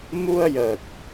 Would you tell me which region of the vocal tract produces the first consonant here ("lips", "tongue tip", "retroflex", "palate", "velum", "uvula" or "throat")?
lips